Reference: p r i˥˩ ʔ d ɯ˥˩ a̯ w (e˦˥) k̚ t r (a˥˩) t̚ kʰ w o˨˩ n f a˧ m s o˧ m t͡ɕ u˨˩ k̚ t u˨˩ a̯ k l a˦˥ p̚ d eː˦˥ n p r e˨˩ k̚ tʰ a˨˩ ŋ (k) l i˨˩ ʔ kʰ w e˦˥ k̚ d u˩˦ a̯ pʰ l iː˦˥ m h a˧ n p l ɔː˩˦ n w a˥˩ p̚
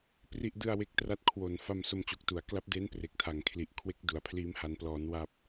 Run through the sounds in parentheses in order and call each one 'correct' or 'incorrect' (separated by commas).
correct, correct, incorrect